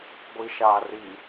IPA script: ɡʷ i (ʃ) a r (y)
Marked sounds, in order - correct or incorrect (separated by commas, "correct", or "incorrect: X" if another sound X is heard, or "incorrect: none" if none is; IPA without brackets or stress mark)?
correct, incorrect: i